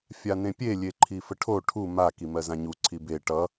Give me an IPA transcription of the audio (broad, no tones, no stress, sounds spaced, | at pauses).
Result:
fʲ a n ẽ pʲ e lʲ e ǃʰ i f ə ʈʰ o ʈʰ u m a k i m ɜ z ã ɲ u ǀʰ i b e ʈ ʌ